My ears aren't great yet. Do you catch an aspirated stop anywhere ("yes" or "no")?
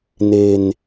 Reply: no